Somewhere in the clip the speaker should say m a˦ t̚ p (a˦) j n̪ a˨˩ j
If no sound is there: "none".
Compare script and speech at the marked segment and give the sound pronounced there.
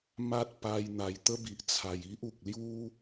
a˧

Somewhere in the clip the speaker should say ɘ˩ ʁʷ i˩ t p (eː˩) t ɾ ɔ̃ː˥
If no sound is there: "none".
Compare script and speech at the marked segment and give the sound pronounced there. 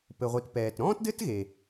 ɛː˩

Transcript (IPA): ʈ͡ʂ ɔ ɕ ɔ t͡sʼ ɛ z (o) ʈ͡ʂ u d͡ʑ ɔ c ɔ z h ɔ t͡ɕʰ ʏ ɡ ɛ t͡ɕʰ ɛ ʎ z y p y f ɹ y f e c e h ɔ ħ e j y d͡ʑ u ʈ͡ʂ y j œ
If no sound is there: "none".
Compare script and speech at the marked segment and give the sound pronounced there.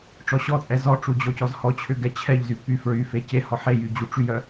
ɔ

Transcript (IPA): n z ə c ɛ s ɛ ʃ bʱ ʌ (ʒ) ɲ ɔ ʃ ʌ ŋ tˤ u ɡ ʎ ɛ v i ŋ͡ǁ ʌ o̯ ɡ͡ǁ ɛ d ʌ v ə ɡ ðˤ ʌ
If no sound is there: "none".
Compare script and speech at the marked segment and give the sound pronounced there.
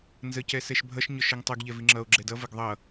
ʃ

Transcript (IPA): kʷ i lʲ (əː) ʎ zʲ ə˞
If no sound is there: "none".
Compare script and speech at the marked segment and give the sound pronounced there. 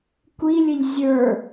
ə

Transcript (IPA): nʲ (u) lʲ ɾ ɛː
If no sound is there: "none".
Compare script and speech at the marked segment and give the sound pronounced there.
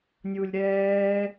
u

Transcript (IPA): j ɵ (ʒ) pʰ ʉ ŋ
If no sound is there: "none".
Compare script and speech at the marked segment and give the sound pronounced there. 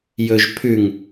ʒ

